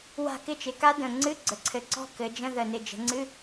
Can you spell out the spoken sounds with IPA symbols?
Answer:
wa̤˦˨kɪ˦˥t͡ʃɪ˩˧ka˦˥ də̃˨˩ŋ͡ǀɨ˧˥˧ ɡ͡ǀə˩˧ǀʰɘ˨˩ǀɔ̤˦˨ kɘ˩˧ d͡ʒə̃˧˥˧ ðə˨˩nɪ˨˩ d͡ʒə̤˩˧ŋ͡ǀɨ˧˥˧

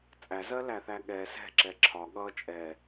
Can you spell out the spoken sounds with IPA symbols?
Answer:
t͡sʼæzɜlæθæ ɠɛ sɛ̤ǁɛ ǁʰɒ ɠʌ t͡ʃʼɛ

